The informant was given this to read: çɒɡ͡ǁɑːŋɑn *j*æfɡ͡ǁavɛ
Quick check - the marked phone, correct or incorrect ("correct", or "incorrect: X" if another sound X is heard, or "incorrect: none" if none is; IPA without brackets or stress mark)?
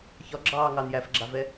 correct